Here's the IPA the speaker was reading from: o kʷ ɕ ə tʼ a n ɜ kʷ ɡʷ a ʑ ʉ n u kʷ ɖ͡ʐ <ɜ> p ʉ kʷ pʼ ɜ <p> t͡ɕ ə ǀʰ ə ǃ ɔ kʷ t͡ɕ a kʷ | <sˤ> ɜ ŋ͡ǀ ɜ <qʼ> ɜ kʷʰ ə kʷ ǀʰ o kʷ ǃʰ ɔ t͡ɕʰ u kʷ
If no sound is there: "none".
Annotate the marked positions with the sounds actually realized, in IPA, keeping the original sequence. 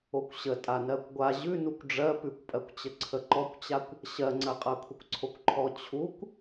ɜ, kʷ, ɕ, qʼ

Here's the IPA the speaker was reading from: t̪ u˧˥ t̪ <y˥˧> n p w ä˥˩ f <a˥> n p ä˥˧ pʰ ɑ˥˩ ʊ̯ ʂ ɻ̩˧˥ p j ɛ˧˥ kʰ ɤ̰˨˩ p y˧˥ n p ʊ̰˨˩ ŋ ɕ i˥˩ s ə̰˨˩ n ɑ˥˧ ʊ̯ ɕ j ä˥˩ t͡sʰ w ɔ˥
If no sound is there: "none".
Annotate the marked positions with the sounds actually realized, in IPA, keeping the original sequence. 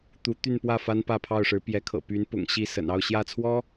y˥˧, a˥

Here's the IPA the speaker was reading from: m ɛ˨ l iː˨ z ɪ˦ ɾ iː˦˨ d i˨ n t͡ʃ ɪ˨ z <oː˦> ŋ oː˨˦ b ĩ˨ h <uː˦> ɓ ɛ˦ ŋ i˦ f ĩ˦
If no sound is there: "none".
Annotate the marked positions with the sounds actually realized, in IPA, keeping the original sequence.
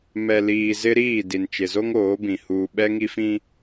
o˦, uː˨

